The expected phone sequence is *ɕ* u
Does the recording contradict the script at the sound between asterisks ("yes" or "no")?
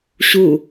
no